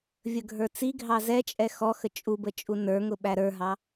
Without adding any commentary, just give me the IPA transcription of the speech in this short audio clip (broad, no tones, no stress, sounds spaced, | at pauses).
vʲ ə ɡʱ ə˞ t͡s i ɡʱ ɑ z ɛ t͡ʃʼ ɛ x ɔ x ə t͡ʃʼ u b ə t͡ʃʼ u n ə˞ ŋ ʊ ɓ æ ɾ ə˞ ɦ ɑ